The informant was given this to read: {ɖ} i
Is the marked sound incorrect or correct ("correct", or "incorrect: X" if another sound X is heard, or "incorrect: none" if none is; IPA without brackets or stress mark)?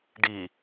correct